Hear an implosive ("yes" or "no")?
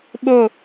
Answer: yes